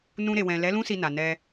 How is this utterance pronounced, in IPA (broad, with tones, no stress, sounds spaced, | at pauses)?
n ũ˧ ɾ e˨ w ɛ̃˨ l ɛ˨˦ l ũ˦ s i˧ n a˨ n ɛ˧